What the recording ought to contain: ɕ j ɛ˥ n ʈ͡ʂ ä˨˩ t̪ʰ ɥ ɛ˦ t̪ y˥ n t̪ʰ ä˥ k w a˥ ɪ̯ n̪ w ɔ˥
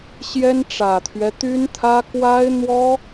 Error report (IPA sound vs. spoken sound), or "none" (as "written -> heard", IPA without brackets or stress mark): none